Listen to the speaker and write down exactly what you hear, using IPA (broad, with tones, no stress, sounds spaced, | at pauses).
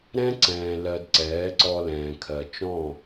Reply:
ɾ ɛ̃˦ ǀ ɛ̃ː˨ l ɜ˨ d ǀ ɛː˨˦ ǀ ɔ˧ l ɛ̃ː˨ kʰ ɜ˨ t͡ʃ ɔ̃˦˨